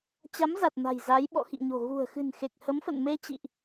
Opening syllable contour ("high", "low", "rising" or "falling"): rising